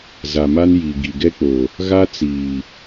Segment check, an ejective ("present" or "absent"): absent